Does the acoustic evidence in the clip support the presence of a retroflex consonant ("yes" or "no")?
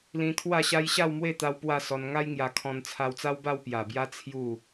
no